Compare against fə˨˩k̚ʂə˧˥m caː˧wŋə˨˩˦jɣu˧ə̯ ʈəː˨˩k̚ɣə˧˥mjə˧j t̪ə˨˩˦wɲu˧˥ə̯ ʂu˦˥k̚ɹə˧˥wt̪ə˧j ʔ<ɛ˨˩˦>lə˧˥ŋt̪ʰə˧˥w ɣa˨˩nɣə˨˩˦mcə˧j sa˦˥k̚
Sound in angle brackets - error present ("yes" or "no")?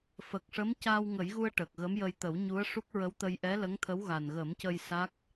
yes